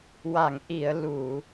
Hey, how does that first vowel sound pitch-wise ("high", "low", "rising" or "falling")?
low